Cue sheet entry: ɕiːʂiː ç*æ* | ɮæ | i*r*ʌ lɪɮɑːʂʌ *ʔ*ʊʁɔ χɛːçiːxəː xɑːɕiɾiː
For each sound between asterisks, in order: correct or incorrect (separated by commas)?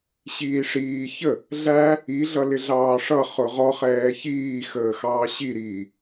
incorrect, incorrect, incorrect